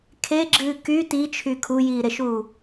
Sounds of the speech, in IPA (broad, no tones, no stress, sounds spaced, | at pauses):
kʰ e ɡ͡ǁ ɨː k y t i t͡ʃʰ y kʰ u j iː ɾ e ʃ uː